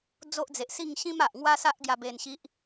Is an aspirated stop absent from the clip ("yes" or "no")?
yes